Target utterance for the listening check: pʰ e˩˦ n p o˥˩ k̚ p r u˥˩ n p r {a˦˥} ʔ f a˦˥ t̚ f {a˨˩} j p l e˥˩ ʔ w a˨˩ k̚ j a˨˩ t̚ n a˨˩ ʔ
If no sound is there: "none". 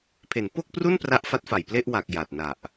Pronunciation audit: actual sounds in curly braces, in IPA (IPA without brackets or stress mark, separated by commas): a˦˥, a˨˩